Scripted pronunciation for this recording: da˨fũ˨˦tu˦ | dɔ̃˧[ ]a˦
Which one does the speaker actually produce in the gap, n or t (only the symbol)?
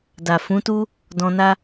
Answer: n